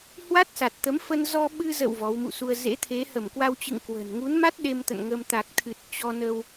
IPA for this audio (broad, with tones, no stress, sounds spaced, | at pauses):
h w a˦˥ t̚ s a˨˩ t̚ t̪ ə˨˦ m f ə˧ n z ɔ˧ ɓ ɨ˧ z ə̰˧˨ w v ɔ˨˦ w m ṵ˧˨ s u˧ ə̯ z ḛ˧˥ t̪ʰ e˨˦ h ə˧˩ m k w a˧ w t͡ɕ ɨ̰˧˨ ŋ k w ə̤˨˩ n ŋ u˨˦ n m a˦˥ t̚ ɗ e˧ m t̪ ə̰˧˨ n ŋ ə˧ m t̪ a˨˩ k̚ t̪ʰ ɨ˨˩ t̚ t͡ɕ ɔ˧ n ə˧ w